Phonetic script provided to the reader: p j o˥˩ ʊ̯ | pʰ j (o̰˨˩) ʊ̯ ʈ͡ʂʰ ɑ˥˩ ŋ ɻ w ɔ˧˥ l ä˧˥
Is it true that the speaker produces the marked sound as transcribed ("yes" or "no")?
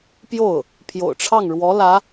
yes